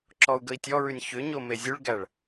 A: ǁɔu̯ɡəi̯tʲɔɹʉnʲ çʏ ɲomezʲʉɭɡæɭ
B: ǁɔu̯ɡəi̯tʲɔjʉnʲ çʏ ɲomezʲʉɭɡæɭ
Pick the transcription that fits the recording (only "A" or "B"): A